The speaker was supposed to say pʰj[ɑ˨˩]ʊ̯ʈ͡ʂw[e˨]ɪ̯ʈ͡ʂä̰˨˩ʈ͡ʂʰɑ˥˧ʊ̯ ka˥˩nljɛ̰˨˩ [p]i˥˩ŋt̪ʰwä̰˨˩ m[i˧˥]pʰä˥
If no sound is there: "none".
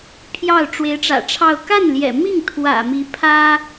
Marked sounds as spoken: ɑ˥˩, e˧˥, m, i˧˥

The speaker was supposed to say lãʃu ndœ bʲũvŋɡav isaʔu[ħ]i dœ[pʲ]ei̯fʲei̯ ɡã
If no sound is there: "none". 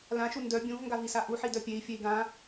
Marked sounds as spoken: ħ, pʲ

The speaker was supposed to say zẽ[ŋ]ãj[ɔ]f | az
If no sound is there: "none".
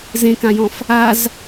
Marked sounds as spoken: k, ɔ̃

